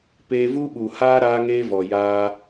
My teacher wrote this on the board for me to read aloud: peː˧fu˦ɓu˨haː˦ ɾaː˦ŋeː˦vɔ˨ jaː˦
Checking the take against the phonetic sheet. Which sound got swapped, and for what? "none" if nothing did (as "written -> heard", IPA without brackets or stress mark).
f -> v